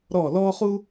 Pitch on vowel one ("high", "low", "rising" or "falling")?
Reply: falling